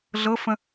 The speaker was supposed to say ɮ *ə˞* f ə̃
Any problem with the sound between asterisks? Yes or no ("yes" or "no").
yes